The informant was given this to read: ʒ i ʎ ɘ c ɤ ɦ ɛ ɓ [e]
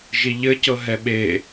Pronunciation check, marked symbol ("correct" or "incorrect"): correct